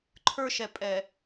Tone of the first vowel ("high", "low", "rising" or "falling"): high